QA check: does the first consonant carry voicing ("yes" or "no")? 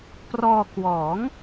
no